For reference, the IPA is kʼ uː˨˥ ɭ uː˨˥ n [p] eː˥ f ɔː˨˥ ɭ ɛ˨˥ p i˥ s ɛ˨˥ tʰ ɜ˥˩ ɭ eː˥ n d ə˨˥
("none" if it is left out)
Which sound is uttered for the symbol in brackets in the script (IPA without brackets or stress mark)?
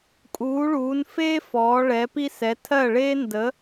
f